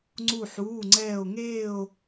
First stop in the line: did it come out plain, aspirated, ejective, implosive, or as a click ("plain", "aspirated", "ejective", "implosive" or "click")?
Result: click